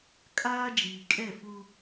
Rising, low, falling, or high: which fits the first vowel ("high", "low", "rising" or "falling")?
high